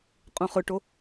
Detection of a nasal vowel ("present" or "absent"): present